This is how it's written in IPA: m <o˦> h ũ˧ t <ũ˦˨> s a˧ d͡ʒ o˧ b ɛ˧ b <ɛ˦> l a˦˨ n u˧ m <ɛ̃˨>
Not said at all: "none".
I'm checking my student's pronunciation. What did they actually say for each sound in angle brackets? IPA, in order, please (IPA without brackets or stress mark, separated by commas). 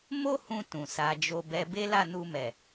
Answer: o˦, ũ˨, e˦, ɛ˨